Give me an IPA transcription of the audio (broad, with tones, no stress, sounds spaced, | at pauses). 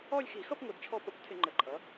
ɔ˥˧ lʲ x i˧˩˧ x ʌ˥˧ p ŋʷ ʌ˧˩˧ d t͡ʃʰ ɔ˥˧ p ʌ˧˩˧ kʷ tʰ ɪ˧˩˧ ŋ͡ǃ ə˧˩˧ ǃʼ ʌ˩˥